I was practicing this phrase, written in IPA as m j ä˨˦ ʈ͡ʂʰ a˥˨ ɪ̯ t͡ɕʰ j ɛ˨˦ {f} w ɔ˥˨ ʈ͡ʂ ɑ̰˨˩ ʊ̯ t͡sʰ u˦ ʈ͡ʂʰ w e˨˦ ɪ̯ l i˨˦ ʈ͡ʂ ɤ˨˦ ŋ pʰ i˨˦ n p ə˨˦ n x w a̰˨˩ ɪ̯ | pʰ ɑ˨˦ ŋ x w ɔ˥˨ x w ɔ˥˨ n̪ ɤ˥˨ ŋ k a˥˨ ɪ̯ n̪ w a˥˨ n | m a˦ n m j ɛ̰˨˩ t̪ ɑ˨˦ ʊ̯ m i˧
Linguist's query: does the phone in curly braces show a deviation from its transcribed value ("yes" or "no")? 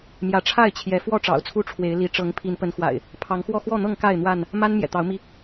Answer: no